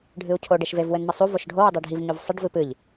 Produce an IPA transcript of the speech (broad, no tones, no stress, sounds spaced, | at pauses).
ɖʱ ɨ u̯ cʰ o ɖ e ʃ v e v w ɘ n m ɘ sˤ u v o ʃ ɖʱ o w ɨ dˤ e ɖʱ i v ɲ o v sˤ ɘ ɖ v ɨ p ɨ ʎ